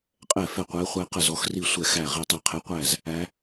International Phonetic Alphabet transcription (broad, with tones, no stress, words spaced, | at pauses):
qʼɛ˥˩fɛ˥˩qʷɛ˧˥χʷæ˧˥ qə˥˩zɔ˧˥xri˥˩ sʷɛ˥˩xæ˥˩ ʁi˥˩tˤɛ˥˩qʰe˧˥qʷæ˥˩z | æ˧˥